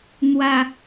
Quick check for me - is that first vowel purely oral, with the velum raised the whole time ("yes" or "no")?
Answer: yes